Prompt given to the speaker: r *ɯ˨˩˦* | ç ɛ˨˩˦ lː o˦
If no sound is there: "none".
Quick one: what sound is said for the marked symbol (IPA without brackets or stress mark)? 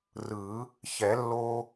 ɯ˨˩˦